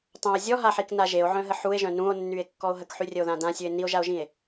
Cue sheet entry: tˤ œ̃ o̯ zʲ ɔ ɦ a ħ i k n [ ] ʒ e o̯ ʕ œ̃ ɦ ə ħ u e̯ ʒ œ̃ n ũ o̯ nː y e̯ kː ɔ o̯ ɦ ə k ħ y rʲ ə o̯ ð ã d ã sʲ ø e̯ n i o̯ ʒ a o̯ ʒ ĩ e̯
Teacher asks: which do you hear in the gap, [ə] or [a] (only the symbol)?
a